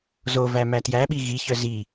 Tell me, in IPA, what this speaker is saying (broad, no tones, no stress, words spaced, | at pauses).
zovæ mætjæɓi ɣiçœ zi